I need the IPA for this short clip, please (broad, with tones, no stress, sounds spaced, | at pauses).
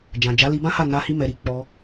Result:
d͡ʒ ã˨ d͡ʒ a˨˦ l i˧ b ã˦ h a˦˨ n a˧ h i˧ m ɛ˨ ɾ i˨˦ k͡p ɔ˧